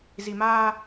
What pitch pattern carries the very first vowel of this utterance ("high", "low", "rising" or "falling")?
low